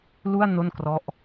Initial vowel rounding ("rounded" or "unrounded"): rounded